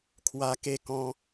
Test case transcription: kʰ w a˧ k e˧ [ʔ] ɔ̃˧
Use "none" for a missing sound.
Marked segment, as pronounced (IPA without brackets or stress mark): k